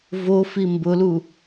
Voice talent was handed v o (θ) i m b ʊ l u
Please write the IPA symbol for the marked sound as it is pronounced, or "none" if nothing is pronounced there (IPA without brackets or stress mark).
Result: f